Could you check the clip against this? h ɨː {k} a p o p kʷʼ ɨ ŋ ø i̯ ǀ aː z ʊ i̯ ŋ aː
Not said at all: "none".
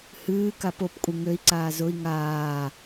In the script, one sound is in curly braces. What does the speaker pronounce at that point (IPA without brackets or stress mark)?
k